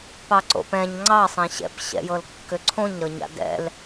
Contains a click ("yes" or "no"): yes